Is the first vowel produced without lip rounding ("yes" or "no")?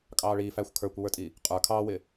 yes